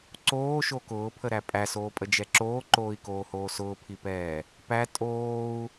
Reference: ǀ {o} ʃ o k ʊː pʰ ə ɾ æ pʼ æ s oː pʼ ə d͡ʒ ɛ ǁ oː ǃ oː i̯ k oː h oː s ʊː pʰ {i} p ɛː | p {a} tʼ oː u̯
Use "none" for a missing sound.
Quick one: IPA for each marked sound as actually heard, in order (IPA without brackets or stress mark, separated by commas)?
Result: oː, i, æ